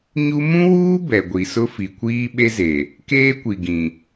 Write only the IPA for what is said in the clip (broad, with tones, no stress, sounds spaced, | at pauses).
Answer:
ɲ u˦ m ũ˦ w uː˦ b ɛ˨ ɡʷ i˨ s ʊ˦ f i˨ kʷ iː˦ ɓ e˦ z e˨ | k eː˦ kʷ i˨ ɡ ĩ˨